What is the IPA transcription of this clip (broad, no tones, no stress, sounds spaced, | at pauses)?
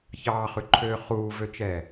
ç ɑː χ ʉ ǃʰ øː χ uː v ø t͡ʃ ɛː